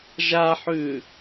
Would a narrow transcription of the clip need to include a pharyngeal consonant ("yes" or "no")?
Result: yes